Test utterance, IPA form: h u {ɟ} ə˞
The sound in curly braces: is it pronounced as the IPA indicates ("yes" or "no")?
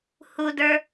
no